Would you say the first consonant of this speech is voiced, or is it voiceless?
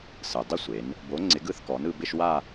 voiceless